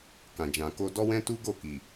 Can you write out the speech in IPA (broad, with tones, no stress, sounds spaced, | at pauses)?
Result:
k ã˨ d͡ʒ ã˨ k o˧ d ɔ˦ w ɛ̃˦ t u˦ ɡ o˦˨ k i˨